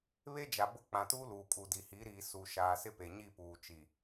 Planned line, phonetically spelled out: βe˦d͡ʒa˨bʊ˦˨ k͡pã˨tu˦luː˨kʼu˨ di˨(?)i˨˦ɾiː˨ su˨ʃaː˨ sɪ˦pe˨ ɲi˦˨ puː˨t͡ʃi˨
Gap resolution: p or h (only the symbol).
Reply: h